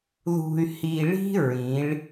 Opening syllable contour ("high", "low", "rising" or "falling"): low